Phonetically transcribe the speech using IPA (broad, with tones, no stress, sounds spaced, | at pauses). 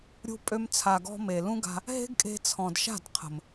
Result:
ɾʲ ṳ˧ pʼ ø˧ m t͡sʰ a˨ ɡ ɔ̤˧ m e˨ l ũ˦ ɡ a̤˧ | ɦ e̤˦ ɡ kʼ e̤˧ t͡sʰ ɔ̃˨ d ʃ a̤˦˨ d qʰ ə̤˨ m